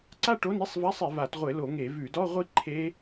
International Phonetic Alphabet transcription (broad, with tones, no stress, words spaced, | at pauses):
ǀa˥˧ʈo˧˥˧ni˧˥˧sˤva˧˥˧sˤ e˧˩˧va˧˩˧tʁʷɪ˧˩˧lo˧˩˧ ŋe˧˩˧vʉ˧˩˧ dɔ˧˥˧ʁʷi˦˥ ǃʰe˦˥